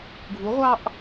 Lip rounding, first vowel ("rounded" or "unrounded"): rounded